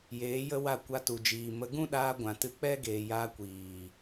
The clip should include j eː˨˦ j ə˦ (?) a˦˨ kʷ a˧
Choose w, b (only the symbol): w